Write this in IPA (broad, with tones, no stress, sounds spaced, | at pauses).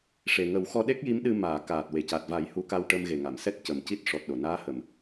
ʂ e˨˩ ŋ ə˨˩˦ w x ɔ˧ ɗ e˦˥ k̚ j i˧˥ m ɗ ɨ˧ m aː˨˩˨ k aː˨˩ t̚ w e˨˩˨ c a˨˩ t̚ v a˨˩˦ j h u˧˥ k a˧ w ʈ ə˧ m ɣ e˨˩ ŋ a˨˩˨ m s ɛ˦˥ t̚ c ə˨˩ m c i˦˥ t̚ ʂ ɔ˨˩ t̚ ɗ o˨˩˨ n aː˧˥ h ə˨˩ m